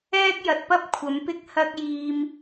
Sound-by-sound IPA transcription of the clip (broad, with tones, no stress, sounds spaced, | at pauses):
ɛː˥ k̚ j ɐ˨ t̚ p ɐ˥ p̚ kʷʰ ɐ˨˥ m p ɪ˥ k̚ h ɐ˥ k̚ j iː˧ m